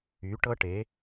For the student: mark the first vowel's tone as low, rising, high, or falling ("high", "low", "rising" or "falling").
rising